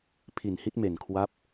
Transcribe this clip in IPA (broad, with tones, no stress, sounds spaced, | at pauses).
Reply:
pʰ i˨˩ n h i˦˥ t̚ m e˨˩ n kʰ w a˦˥ p̚